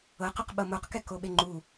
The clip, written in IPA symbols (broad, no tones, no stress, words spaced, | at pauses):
ɤqoqɓɤ moqkɛkoɓe ŋ͡ǃu